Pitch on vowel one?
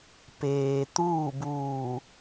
low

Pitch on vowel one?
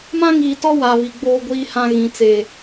high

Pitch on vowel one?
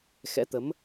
rising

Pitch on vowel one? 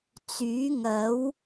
rising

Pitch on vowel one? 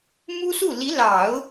high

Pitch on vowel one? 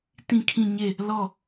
falling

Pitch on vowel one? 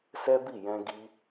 high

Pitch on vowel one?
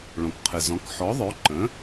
low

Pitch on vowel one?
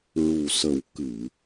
low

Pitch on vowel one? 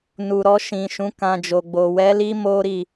low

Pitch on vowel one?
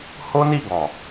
high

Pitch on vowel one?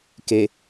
low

